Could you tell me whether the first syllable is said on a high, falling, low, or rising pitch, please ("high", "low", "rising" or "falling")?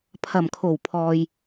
low